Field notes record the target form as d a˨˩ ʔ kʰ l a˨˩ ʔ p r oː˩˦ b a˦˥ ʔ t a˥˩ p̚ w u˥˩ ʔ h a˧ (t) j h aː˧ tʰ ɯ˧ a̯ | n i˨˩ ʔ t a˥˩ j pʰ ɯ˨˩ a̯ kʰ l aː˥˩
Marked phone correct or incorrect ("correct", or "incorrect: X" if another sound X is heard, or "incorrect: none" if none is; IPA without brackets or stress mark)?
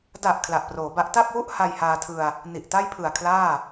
incorrect: none